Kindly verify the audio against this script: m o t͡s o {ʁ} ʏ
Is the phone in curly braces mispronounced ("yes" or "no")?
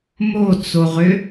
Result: no